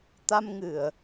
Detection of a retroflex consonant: absent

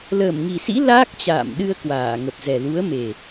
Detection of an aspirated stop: absent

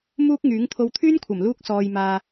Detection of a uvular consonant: absent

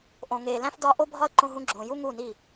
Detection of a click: present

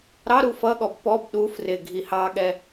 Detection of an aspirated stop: absent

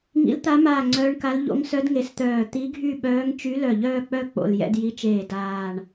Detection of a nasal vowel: absent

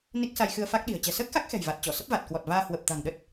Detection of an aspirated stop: absent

